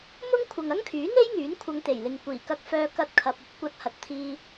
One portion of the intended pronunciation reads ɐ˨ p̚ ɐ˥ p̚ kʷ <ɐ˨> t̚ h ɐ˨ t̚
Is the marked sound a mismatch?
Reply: yes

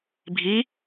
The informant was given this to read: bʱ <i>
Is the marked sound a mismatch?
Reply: no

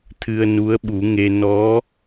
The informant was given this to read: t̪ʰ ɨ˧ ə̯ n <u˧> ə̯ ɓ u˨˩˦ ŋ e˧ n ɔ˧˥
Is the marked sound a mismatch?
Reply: yes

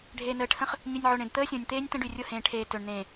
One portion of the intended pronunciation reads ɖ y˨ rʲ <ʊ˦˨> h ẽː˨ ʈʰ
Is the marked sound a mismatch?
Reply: no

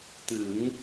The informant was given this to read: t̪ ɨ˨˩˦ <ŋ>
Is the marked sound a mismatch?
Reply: no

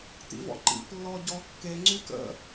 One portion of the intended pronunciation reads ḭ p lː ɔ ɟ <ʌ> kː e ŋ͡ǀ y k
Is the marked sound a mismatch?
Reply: yes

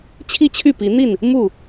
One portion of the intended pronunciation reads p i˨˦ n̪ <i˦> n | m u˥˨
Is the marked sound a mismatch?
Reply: yes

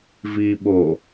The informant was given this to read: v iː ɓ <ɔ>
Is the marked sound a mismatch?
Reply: yes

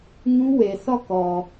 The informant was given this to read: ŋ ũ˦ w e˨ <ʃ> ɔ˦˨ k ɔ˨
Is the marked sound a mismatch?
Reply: yes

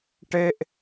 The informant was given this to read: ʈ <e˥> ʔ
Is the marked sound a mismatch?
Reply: no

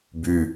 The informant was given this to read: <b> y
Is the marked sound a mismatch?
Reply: no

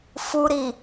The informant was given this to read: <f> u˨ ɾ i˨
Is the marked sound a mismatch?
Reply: no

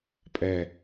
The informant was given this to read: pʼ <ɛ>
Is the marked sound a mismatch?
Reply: no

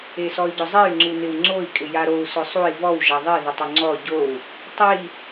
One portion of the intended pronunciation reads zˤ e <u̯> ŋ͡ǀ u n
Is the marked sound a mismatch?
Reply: yes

